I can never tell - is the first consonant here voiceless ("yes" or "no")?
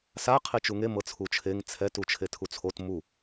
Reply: yes